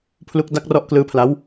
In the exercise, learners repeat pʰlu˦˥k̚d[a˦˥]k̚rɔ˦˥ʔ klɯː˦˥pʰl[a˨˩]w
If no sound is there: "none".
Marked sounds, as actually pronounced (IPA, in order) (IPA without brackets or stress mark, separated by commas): a˦˥, a˦˥